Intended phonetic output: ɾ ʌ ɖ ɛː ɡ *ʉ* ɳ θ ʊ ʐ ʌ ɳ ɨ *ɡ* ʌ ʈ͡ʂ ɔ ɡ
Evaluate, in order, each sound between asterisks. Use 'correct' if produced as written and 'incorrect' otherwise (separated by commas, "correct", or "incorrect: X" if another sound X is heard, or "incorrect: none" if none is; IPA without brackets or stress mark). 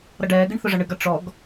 incorrect: ɨ, correct